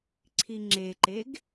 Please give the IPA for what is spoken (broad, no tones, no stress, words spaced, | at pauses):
ǀʰiŋ͡ǁeǃeɡ